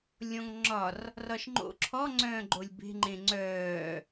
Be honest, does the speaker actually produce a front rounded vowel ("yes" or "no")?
yes